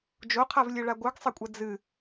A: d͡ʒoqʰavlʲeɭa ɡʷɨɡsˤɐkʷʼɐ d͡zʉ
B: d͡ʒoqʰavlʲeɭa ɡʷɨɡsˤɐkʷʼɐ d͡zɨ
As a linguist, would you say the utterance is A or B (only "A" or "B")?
B